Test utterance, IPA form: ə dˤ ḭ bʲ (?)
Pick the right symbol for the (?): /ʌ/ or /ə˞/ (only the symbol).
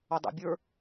ə˞